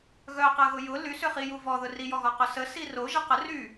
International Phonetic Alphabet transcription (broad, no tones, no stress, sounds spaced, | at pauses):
ɣ œ q ɐ ɣ ʊ j ʊ l y s ʏ χ i j u v ɔ ð ʊ r i j ɔ ɣ ɔ q ʊ s ə s i r o ʒ ɐ q ə r y